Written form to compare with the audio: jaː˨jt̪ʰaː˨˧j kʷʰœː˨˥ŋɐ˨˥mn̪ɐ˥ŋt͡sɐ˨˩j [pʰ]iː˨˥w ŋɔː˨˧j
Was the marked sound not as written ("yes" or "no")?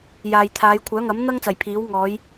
no